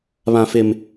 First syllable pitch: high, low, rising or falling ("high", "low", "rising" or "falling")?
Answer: low